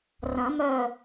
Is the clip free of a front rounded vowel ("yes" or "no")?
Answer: no